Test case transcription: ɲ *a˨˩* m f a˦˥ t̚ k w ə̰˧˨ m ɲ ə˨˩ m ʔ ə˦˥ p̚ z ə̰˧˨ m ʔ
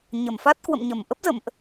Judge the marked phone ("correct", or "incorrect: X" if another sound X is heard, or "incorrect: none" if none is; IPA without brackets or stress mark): incorrect: ə˨˩